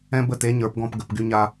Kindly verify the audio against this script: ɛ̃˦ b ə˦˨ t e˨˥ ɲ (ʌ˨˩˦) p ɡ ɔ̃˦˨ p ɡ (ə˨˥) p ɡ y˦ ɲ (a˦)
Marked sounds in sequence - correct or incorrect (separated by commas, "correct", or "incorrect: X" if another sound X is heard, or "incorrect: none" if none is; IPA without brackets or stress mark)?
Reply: incorrect: ə˞˨˩˦, incorrect: ə˨˩˦, correct